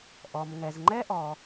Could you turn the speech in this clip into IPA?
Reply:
ʔ ɔ˩ m ŋ ɛ˩ z ŋ͡ǃ ɛ˦ ʔ ɔ˩

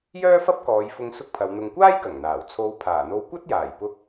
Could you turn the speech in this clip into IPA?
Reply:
j œː˥ f ɐ˥ p̚ k ɔː˨˧ j f ʊ˧ ŋ s ʊ˥ k̚ pʰ ɐ˨˧ w n̪ ʊ˨ ŋ kʷ aː˥ j k ɐ˨˩ ŋ n̪ aː˨˩ w t͡sʰ o˨˧ w pʰ aː˨˩ n̪ o˧ w kʷ ɐ˥ t̚ j aː˨˩ j p ʊ˧ k̚

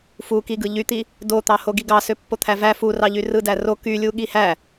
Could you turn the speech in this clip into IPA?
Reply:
f u k i ɡ ɯ ʎ y t̪ i | d o t̪ ɑ h o ɡ i ɡ ɑ s ø pː o t̪ʰ æ v æ f u r ɑ ʎ y r ɯ d æ r o k y lʲ u ɠ i h æ

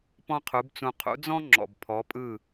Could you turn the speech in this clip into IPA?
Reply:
p ɔ̃˥ qʰ u˩˥ b t͡s ũ˧ qʰ ṵ˩˥ d͡z ɔ̃˥ ŋ͡ǁ ɔ̰˩ b pʰ ɔ˩˥ pʼ ɯ˥˩

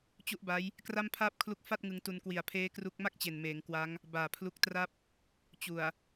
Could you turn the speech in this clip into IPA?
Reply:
t͡ɕ u˦˥ ʔ b a˦˥ j | k r a˥˩ m pʰ aː˥˩ p̚ kʰ l u˦˥ k̚ f a˥˩ t̚ ŋ ɯ˧ ŋ t u˧ n k w i˨˩ a̯ pʰ eː˦˥ k r u˦˥ k̚ m a˥˩ k̚ t͡ɕ e˨˩ n m eː˩˦ ŋ k w a˦˥ ŋ | b aː˨˩ pʰ l u˦˥ k̚ t r a˥˩ p̚ | t͡ɕ u˨˩ a̯

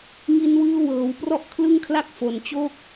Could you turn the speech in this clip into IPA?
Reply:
ŋ i˧ n w ɯː˧ w ɤː˩˦ w p r ɔ˦˥ ʔ kʰ l ɯ˥˩ ŋ kʰ l a˥˩ k̚ f o˨˩ n t͡ɕ o˥˩ k̚

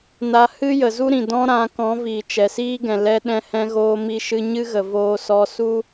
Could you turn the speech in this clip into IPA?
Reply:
n a˧ h ɨ˦ j ə˨ z u˦ ɾ ĩ˨ d ɔ̃˧ ɾ ã˨˦ k ɔ̃˨˦ v iː˨ t͡ʃ ɛ˨ s iː˦ ɡ ɛ̃˨ l ɛ˧ ɗ ɛ̃˧ h ɛ̃˧ ɣ oː˧ m i˧ ʃ ɨ˧ ɲ ɨ˦ ɣ ə˨ v oː˧ s ɔ˧ s u˦

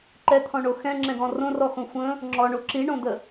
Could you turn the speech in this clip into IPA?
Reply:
ǃ ɛ t̪ʰ ɔ̃ ɳ o x ɛ̃ ŋ͡ǁ ɛ̃ ɡ ɔ̃ r õ r ɔ x õ xʷ ə̃ | ŋ͡ǁ ɔ ɳ o ǁ i ɳ õ d̪ ə

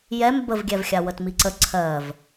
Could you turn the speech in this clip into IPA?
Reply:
j ɛ m b ə v ɡʲ ɛ v xʲ a w ə t m i ǀ ə ǀʰ ɜ v

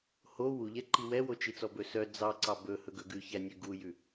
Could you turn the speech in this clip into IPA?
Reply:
h o w u ʎ ɛ ǃ i w ɛ w o t͡ʃ i t͡s ɔ b ɵ s œ d͡z ɑ ǀ ɑ b ɵ h ɵ ɡ ɵ ɡ ʉ ç æ nʲ ʉ ɡ u j ʉ

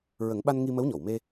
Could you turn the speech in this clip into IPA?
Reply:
ɹ ə˨˩˦ ŋ ɓ a˧ n ŋ i˧ m ə˧˥ w ɲ ɔ˨˩˨ w m e˧

